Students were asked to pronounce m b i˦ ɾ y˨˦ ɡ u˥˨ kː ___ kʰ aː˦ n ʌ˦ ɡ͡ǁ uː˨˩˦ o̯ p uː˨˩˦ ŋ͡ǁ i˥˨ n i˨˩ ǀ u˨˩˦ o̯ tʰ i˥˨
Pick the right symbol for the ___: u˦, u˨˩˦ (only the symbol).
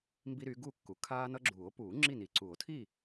u˨˩˦